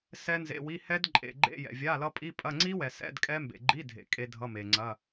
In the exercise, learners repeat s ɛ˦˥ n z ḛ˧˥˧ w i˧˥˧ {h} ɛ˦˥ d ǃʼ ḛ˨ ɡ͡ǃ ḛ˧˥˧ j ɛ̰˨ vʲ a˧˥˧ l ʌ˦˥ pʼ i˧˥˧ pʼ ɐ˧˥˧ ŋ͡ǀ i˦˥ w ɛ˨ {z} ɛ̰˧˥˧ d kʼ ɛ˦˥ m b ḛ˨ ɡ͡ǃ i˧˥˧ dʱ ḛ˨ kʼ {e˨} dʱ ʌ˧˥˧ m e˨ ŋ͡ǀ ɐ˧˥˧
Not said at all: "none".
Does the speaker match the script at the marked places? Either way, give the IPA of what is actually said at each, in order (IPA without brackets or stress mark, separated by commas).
h, s, e˦˥